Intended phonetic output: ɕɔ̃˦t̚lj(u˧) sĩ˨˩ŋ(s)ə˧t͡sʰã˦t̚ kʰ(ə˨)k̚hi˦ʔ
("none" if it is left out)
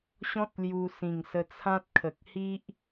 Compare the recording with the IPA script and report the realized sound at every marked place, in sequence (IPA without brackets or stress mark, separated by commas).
u˧, s, ə˨